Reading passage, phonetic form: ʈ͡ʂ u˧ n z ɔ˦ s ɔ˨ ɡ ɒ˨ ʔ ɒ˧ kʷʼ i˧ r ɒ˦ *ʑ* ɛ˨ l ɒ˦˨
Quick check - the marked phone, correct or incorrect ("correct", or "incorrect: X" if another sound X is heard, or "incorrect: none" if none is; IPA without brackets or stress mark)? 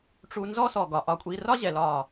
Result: correct